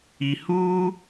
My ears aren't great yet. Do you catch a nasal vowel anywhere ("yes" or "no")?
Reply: no